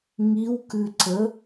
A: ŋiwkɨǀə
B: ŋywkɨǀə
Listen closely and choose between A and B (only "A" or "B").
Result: A